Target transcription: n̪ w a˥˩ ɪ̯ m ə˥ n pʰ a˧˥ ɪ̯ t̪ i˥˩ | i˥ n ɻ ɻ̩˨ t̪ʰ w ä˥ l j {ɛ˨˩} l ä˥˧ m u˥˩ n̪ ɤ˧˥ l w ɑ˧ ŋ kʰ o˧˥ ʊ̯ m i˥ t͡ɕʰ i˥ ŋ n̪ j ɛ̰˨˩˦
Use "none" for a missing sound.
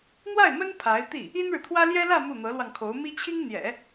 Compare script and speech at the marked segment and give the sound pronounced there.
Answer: ɛ˥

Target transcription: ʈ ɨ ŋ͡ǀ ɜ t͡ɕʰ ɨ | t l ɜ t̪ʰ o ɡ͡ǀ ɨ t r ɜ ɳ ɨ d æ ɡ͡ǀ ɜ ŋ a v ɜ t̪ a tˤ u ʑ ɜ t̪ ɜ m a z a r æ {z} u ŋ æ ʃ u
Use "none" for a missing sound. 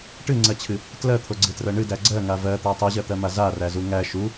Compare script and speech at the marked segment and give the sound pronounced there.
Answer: z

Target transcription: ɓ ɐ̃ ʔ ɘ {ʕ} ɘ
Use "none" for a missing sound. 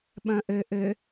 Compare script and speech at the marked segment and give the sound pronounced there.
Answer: ʔ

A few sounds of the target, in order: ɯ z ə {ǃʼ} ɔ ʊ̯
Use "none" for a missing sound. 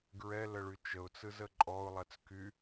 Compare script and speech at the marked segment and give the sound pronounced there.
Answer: ǃʼ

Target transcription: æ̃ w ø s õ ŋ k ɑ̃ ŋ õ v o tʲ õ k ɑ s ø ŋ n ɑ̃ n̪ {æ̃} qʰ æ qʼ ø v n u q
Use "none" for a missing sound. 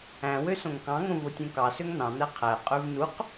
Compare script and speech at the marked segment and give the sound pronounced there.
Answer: æ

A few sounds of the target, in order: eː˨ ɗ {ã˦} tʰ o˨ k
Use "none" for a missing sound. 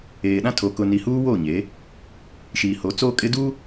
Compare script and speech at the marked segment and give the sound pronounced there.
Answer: ã˦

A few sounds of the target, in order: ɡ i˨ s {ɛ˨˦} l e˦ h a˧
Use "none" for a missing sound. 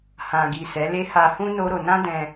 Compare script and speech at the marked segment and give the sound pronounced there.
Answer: ɛ˨˦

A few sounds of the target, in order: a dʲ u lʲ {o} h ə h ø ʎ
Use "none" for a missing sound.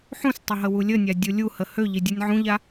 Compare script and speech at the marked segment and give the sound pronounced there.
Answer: u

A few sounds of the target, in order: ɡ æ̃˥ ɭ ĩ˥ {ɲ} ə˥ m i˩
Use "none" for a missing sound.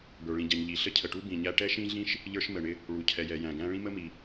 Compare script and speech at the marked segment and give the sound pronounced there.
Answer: m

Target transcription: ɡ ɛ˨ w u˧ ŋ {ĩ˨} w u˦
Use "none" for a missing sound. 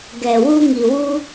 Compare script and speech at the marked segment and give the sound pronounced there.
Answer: i˨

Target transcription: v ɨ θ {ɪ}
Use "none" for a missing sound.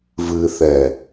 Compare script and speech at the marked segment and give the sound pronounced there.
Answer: ɛ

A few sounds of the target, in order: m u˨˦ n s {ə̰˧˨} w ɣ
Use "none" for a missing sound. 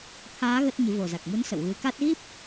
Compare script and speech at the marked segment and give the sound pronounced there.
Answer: ə̰˧˨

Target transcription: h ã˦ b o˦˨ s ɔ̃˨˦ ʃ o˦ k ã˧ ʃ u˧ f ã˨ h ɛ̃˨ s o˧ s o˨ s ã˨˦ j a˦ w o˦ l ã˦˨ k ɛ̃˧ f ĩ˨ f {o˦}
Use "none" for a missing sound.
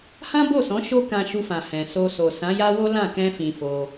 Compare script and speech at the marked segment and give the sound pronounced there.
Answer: o˧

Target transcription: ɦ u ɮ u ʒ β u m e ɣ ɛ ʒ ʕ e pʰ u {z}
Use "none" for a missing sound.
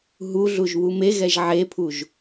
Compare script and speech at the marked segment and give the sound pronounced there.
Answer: ʒ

